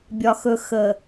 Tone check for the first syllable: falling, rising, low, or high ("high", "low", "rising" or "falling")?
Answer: low